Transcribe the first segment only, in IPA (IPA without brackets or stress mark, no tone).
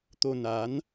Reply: t̪